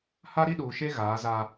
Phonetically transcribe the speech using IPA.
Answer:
h a˦ ɾ i˦ ɗ uː˨ ʃ e˦ ɣ aː˨˦ z a˦

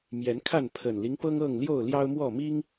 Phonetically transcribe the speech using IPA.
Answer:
m j ɛ˨˦ n kʰ a˥˨ n pʰ ə˨˩ n l i˦ ŋ p ɤ˦ ŋ ɤ˥˨ ŋ l j o˥˨ ʊ̯ l j ɑ˦ ʊ̯ m w ɔ˥˨ m i˦ ŋ

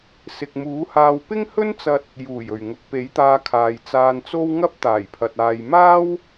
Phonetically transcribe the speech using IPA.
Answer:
s ɪ˨ k̚ m uː˨˥ h aː˧ w p ɪ˥ ŋ h ɵ˥ n t͡s ɐ˧ t̚ | j uː˨˩ j ɵ˨˩ ɥ ŋ ʊ˨ k̚ p e˨˥ j t̪ aː˧ kʰ aː˨ j t͡s aː˧ n t͡s o˥ w ŋ ɐ˥ p̚ t̪ aː˨˩ j pʰ ɐ˨ t̚ aː˨ j m aː˥ w

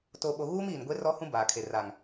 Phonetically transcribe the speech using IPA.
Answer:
t oː˨ ɓ o˨ ɣ uː˦ m iː˨ n ɡʷ e˦ r ɔ˦ h ũ˦ b aː˨ kʰ e˨ r aː˨ ŋ

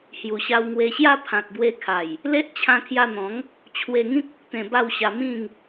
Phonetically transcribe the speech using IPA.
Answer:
h j u˨˩ ɕ a˧ w ŋ w e˧ ɕ j a˦ pʰ ã˨ k̚ b w e˧ kʰ a˨˩ j | l e˦ ʔ t͡ɕʰ ã˧ kʰ j a˧ n̪ ɔ̃˨˦ ŋ | t͡ɕʰ w e˧ ŋ ĩ˦ k̚ o˦ k̚ t̪ ẽ˧ b a˥˧ w ɕ a˧ m ĩ˥˧ ŋ

